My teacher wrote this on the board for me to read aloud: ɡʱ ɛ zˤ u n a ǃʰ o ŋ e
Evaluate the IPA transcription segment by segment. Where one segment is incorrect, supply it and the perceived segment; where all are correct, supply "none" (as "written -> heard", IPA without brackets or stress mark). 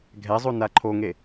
none